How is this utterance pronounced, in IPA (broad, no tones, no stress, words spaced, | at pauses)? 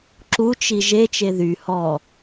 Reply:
ǁu t͡ʃiʒe t͡ʃeðy hɔ